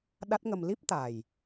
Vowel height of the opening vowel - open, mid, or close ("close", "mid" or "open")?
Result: open